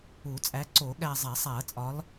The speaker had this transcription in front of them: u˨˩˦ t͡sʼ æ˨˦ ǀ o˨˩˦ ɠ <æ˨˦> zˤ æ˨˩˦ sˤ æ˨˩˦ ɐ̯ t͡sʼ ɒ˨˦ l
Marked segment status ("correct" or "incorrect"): incorrect